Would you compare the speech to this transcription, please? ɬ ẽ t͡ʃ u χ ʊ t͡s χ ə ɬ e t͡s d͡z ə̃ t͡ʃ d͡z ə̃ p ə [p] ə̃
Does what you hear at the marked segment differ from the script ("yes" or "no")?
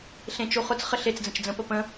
no